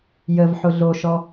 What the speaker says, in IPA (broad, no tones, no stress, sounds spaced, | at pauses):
j ə v ħ ʊ ɮ o ʃ ɔ